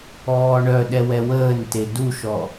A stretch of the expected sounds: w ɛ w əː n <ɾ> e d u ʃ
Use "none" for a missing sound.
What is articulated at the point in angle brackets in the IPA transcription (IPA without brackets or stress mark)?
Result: t